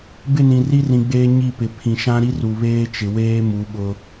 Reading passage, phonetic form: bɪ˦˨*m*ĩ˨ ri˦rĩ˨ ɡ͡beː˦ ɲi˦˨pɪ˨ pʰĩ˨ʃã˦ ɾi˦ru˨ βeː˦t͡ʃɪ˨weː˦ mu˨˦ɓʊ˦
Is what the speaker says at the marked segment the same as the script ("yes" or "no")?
no